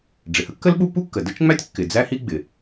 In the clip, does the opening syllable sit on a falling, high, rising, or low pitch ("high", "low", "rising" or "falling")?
low